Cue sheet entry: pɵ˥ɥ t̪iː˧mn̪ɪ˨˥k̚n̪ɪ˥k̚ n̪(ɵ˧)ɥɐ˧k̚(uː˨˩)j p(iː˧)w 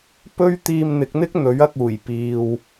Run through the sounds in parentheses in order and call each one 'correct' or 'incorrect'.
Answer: incorrect: ɵ˨˥, correct, incorrect: iː˨

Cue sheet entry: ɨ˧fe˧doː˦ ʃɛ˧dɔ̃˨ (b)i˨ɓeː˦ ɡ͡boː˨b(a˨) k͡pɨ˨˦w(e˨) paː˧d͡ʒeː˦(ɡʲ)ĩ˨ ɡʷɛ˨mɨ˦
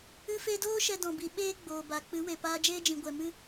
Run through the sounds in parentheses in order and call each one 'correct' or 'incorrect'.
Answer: correct, correct, correct, incorrect: d͡ʒ

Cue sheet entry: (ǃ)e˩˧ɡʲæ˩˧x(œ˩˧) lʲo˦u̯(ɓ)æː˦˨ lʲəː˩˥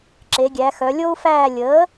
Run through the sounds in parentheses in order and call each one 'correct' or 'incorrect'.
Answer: incorrect: ǁ, correct, incorrect: f

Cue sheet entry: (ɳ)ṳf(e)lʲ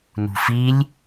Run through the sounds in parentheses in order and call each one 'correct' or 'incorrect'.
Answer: incorrect: n, incorrect: i

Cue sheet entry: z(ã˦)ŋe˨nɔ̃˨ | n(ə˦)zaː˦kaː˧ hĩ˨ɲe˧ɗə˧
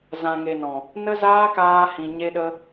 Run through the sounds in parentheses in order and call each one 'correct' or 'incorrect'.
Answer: incorrect: ã˨, correct

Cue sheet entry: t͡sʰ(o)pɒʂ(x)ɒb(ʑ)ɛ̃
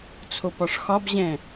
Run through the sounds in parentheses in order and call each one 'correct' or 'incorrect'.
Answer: correct, correct, correct

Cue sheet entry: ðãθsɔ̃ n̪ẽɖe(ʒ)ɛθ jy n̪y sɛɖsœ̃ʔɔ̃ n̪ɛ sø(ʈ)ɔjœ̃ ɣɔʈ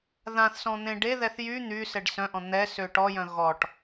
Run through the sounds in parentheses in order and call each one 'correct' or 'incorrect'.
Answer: incorrect: ð, correct

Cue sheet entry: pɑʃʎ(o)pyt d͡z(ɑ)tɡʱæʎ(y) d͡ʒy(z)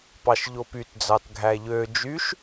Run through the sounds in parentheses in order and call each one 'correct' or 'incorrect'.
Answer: correct, correct, incorrect: ø, incorrect: ʃ

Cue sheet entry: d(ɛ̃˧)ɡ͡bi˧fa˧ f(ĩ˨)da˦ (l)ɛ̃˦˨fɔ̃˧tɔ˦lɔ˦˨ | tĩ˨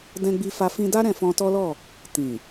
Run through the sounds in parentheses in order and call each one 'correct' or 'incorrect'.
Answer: correct, incorrect: ĩ˧, incorrect: ɾ

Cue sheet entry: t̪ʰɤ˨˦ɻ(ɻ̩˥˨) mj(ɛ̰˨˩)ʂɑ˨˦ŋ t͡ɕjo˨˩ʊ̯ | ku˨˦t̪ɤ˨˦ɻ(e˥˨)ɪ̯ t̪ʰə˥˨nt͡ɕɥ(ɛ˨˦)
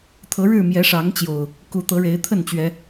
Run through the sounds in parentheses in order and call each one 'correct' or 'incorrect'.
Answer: correct, incorrect: ɛ˨˦, incorrect: e˨˦, correct

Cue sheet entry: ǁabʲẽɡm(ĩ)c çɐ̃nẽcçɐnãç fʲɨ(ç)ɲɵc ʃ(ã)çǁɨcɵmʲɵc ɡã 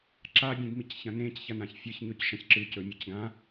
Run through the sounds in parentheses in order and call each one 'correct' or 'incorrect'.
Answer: incorrect: i, correct, incorrect: ɐ̃

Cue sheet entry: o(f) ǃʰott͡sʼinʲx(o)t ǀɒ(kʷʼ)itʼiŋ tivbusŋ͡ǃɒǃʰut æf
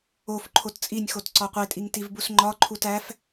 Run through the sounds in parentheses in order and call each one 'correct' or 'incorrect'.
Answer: correct, correct, incorrect: qʷ

